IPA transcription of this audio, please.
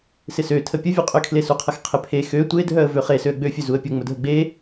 sɪsø tʰəpʲəvʲø qʼʏkʰlesuqʰɐx qʰɪpʰe xø tʷedʱœə̯ vøχesøə̯ ɡ͡bøfʲø zuə̯pʲə ŋ͡mʊdʱəɡ͡be

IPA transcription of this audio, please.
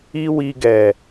i˦wi˧ɡɛ˨

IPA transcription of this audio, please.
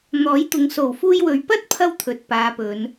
n̪ɔː˨˥jt̪ʊ˨˧ŋ so˨˩wfuː˧jwɵ˨ɥ pɐ˥t̚pʰɐ˧w t̪ʰɵ˨˥t̚paː˨˧pɵ˨˧n

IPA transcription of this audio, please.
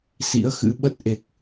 sḭ˧˥ə̯xɨ̰˧˥ ɓə˦˥t̚ʔe˨˩k̚

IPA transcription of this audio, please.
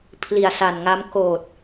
pʰli˨˩a̯sa˨˩nŋa˦˥m koː˨˩t̚

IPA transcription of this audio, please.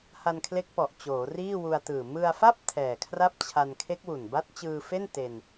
ha˧nkʰle˦˥k̚pɔ˨˩ʔ t͡ɕoː˩˦riː˥˩wu˧a̯tɯː˨˩ mɯ˧a̯fa˥˩p̚ tʰɛː˨˩kʰra˥˩p̚t͡ɕʰa˧n kʰe˦˥k̚wu˨˩nba˦˥t̚ t͡ɕɯː˧fe˥˩n te˧n

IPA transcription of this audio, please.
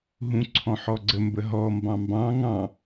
ɦũǀʰɔ̃ħɔɡ͡ǀə mbəɦɔ mbɑ̃mbɑ̃ ŋɑ̃

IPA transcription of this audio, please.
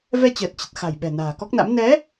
vɛ˧t͡ɕəː˨˩t̚t͡ɕə˨˩t̚ xa̤˨˩jɓɛ̤˨˩ na̤ː˨˩kɔ˦˥k̚na̰˧˥m nɛ˨˦

